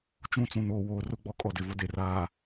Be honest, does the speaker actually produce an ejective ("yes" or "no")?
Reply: yes